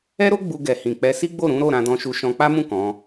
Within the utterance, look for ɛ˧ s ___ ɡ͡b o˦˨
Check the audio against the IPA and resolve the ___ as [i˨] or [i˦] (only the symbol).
i˦